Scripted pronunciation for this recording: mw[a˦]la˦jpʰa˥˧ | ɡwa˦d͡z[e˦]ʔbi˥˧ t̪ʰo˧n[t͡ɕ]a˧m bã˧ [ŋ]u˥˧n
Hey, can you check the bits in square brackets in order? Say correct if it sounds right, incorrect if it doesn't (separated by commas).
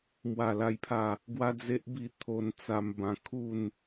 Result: incorrect, correct, incorrect, incorrect